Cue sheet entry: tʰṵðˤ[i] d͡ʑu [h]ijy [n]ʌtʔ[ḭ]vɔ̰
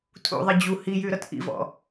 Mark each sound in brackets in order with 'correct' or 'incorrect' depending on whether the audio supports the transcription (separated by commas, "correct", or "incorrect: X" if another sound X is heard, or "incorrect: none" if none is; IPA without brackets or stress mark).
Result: correct, correct, incorrect: ɾ, correct